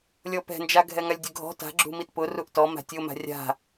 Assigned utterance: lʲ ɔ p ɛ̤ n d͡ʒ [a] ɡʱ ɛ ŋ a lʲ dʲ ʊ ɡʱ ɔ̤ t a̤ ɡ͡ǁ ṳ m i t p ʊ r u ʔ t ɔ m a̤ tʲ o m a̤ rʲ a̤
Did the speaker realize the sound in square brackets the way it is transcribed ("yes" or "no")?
yes